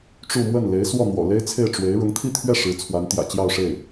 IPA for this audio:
ʈ͡ʂu˥˧ mwə˥˩nle˧˥ɪ̯swɔ˥˩n̪wɔ̰˨˩ le˥ɪ̯t͡sʰe˥˩ɪ̯ ʈ͡ʂwe˧˥ɪ̯ ɻʊ˧˥ŋt̪ʰi˥˧t̪ʰɥɛ˥˩ ʂɻ̩˧˥t͡sʰwa˧˥n t̪jä̰˨˩t͡ɕjɑ˥˧ʊ̯ʂe˥˩ɪ̯

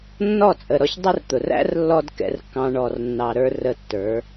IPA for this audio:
nːɔ˦˨t͡sʼə˨ɾɔ˧ç dˤʊ˦rt̪ʊ˨r æ̰˦rlːɔ˧d kɛ̰˦rkːɑ̃˦ ɳɔ˨rnːɑ˨ɾə˞˧ rə˧tːə˞˨˦

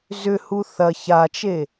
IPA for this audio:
zʏhu θɐ çat͡ʃe

